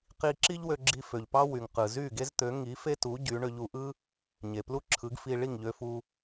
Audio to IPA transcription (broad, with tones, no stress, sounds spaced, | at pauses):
q i˧ ǁ i˥ ʎ w ø˧ ɡ͡ǁ i˧ f ø˩ ʎ p ɑ˥ w y˩ ŋ q ɯ˩ z y˥˩ ɡ e˥ z t̪ ø˩˥ ŋ i˩˥ f e˥ t u˩˥ ɟ y˩˥ ɳ ø˧ ʎ u˧ ʔ ɯ˥ | ɲ e˩ p l u˥ ǁʰ ɯ˩˥ ɡ f i˧ ɭ i˥˩ ŋ ʎ ø˧ f u˧